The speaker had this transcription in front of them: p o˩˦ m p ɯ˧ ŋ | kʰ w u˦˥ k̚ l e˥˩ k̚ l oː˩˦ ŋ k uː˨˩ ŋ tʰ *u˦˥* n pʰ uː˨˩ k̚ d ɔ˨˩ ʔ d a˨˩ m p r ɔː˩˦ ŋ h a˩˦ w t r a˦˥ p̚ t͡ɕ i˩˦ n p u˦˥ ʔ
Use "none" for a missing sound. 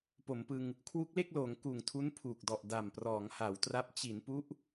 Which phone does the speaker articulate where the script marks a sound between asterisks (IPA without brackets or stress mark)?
u˦˥